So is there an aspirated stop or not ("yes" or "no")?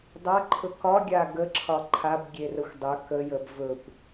yes